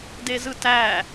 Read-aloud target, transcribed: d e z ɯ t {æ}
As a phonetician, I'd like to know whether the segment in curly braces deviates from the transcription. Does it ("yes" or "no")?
no